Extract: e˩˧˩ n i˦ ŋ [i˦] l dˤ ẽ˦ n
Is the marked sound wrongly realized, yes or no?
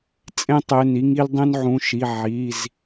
no